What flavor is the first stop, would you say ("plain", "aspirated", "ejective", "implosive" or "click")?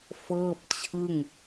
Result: plain